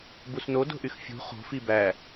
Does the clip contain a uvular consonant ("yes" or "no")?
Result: yes